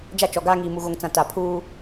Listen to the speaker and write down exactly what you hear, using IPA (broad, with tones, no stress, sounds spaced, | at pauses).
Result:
d͡ʒ a˦ t͡ʃ ɔ˨ ɡ aː˦ ŋ iː˨ m u˨ ɣ o˨ ŋ t͡s ã˨ t a˨ pʰ uː˦